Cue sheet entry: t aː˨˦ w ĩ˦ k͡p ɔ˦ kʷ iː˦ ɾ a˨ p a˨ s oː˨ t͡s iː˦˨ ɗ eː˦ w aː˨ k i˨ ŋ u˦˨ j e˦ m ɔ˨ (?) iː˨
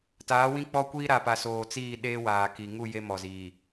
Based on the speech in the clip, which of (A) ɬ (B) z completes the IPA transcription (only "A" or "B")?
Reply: B